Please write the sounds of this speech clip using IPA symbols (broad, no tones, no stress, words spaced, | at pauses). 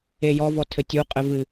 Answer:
ejɔ vɔtʰɘtʲu qʼɘvɨ